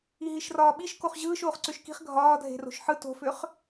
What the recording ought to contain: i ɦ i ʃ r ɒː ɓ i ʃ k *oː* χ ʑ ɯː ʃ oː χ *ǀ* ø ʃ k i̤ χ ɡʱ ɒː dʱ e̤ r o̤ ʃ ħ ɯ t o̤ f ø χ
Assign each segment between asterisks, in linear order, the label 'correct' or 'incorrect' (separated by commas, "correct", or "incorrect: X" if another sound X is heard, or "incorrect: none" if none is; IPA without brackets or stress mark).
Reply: incorrect: o, correct